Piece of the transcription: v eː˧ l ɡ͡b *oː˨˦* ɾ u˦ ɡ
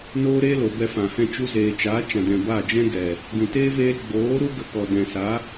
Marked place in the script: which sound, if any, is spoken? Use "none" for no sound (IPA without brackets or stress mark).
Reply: oː˨˦